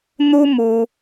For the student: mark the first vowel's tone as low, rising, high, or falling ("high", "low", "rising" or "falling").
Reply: high